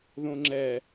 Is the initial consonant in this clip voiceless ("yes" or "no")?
no